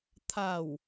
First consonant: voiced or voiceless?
voiceless